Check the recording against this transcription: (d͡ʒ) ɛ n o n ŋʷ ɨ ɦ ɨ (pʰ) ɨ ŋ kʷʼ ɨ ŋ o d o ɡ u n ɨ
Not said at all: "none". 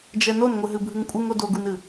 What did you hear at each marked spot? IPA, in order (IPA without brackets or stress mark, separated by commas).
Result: d͡ʒ, bʱ